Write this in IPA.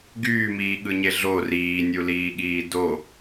ɡ yː m iː ɠ ɯ ɲ e ɮ o r iː nʲ u l iː ɠ iː d o

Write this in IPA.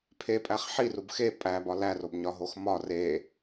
pʰ e pʼ æ χ ħ i r u b x e pʼ æ b ɒ l æ r o b ɲ ɒ ɦ o x m ɒ r e

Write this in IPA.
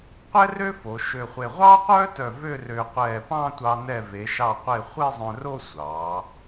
qʷ ɛ˥ r ø˥ f o˩˧ ʃ ø˧˩ χʷ e˧˩ ʁʷ ɑː˥ qʷ œː˥ t œ˧˩ v ø˥˧ r øː˧ qʷ ɛː˧˩ p ɑ̃˥˧ tʷ ɑ˧ n ɛ˧˩ v e˩˧ ʃ ɑ˧˩ qʷ e˧˩ χʷ e˥˧ zˤ œ̃˧ r o˥˧ sʷ ɑː˩˧

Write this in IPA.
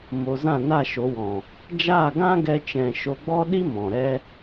m o˧ z ã˦˨ n a˦˨ ʃ o˨˦ w ɔ̃˨ | d͡ʒ aː˦˨ ɡ ã˦ ɡ ɛ˧ t͡ʃ ɛ̃˨ ʃ o˧ ɡ͡b ɔ˦ ɗ i˦ m ɔ̃˨ ɾ ɛ˦

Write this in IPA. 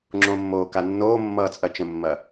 ŋ͡ǁ õ mː oː k a nː oː mː ʌː t͡sʼ ɐ t͡ʃ ə̃ mː ɐ

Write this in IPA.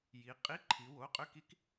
j i˩˧ qʼ i˧˥˧ ǃʰ i˩˧ w o˩˧˩ qʼ ʏ˧˥˧ k i˧˥ k

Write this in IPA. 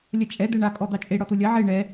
lʲ ɐ t͡ʃʼ ɛ d̪ ɛ ɳ a kʼ ɔ d̪ ɑ t͡ʃʼ e ɽ ɔ t̪ o lʲ ɐ ʕ e ɳ ɛ

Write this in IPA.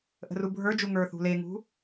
ʔ ə̤ r u bʱ ə˞ d͡ʒ u ŋ ə˞ θ ṳ l e ŋ ṳ

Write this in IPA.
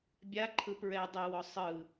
bʲ a ǃʰ ɯ p ɹ ɛ dˤ e w ɔ sˤ ɯ

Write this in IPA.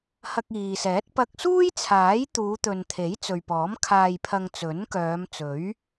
h ɐ˧ k̚ iː˨ s ɛː˨˥ t̚ p ɐ˧ k̚ s uː˥ j t͡sʰ aː˨˥ j t̪ uː˨˧ t̪ ɵ˨ n t̪ʰ e˨˥ j t͡s ɵ˨ ɥ p ɔː˨˥ m kʰ aː˧ j pʰ ɐ˧ ŋ t͡s ɵ˨˥ n k œː˨˧ m t͡s ɵ˨˥ ɥ

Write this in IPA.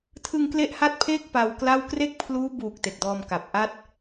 tʰ ɯ˧ ŋ k l e˥˩ ʔ h a˥˩ t̚ pʰ eː˥˩ k̚ p a˧ w k l a˥˩ w k r e˥˩ k̚ pʰ l uː˦˥ b uː˨˩ k̚ t e˨˩ k̚ d ɔː˧ m k a˨˩ p̚ ʔ a˦˥ t̚

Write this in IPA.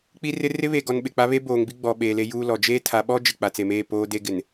k͡p i˦ r ɪ˦ r ɪ˦ β e˨ ɡ ɔ˨ n ɓ ɪ˨ k͡p a˦ β e˦ b oː˨ ŋ b i˦ ɡ͡b ɔ˨ ɓ eː˨ l e˦ j uː˦ l ɔ˨ d͡ʒ eː˦ tʰ a˨˦ ɓ ɔ˦ d͡ʒ ɪ˨ k͡p a˨ t͡s e˨ m eː˦˨ p oː˦ d e˦ ɡ ɪ˨ n

